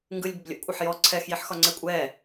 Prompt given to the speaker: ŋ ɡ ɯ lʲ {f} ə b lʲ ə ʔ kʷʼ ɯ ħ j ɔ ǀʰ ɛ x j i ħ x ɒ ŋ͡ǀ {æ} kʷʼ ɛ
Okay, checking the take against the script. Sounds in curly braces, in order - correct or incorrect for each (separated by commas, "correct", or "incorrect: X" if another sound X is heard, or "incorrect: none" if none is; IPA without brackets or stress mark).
incorrect: b, incorrect: ɛ